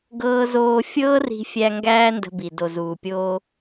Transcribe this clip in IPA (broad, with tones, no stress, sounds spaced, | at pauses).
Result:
ɡ ɤː˧ z oː˧ fʲ ɤː˦ r i̤˧ fʲ æ˧ ŋ ɡ æː˦ n d ə̤˧ b i˨ d o˨ z uː˨ pʲ oː˧